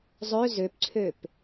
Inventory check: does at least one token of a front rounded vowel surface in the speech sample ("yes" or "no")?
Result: yes